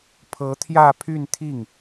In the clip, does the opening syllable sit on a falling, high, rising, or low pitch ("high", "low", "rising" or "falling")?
rising